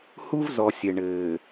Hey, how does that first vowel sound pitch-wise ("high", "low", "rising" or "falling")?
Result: high